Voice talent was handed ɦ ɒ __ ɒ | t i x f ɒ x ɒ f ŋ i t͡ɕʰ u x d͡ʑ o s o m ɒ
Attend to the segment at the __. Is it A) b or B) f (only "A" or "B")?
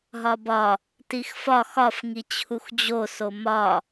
A